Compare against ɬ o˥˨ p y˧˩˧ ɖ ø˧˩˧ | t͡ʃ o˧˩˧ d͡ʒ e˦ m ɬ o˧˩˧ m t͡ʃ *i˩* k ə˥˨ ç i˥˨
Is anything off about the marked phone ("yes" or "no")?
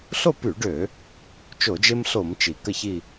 no